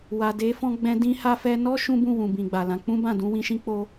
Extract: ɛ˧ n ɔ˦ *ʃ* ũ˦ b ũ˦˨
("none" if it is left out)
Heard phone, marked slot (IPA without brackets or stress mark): ʃ